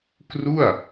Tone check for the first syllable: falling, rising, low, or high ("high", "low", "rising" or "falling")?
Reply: falling